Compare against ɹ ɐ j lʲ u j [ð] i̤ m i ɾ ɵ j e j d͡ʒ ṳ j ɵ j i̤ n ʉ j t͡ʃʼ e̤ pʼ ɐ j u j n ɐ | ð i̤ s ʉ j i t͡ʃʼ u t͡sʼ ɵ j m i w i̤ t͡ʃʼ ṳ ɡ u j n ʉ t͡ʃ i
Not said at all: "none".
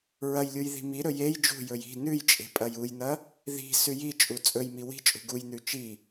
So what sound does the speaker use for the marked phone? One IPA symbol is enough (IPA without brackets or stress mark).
ð